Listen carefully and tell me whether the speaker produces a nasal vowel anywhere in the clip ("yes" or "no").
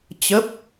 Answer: no